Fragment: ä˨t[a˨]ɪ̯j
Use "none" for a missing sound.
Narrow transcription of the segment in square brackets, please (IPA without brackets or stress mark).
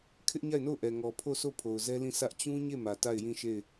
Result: a˦˨